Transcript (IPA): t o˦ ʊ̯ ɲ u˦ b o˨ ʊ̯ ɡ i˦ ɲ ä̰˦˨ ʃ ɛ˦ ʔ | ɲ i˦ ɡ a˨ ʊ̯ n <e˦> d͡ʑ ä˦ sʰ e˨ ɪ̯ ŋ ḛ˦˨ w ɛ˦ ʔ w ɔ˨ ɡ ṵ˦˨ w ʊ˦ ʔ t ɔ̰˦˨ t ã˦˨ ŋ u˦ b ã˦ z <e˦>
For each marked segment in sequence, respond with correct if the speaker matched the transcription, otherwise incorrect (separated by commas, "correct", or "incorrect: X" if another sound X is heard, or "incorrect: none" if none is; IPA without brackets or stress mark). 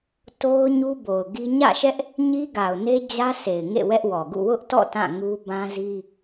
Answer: correct, incorrect: i˦